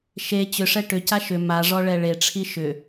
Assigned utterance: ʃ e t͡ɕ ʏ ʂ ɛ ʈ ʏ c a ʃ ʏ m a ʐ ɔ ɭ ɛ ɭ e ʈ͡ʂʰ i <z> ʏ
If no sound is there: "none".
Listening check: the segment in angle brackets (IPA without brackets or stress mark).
ʃ